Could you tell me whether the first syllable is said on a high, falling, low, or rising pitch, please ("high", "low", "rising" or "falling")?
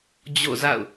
falling